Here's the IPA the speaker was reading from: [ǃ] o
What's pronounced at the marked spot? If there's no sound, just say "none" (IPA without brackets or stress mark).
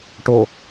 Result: ʈ